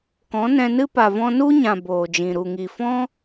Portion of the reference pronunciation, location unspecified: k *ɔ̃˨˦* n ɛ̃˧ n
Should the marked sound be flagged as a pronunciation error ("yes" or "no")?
no